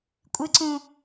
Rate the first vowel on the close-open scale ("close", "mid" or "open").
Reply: close